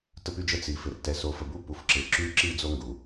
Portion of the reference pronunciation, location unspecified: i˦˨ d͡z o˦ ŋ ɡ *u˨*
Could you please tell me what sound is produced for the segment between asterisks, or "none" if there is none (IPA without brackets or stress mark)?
u˨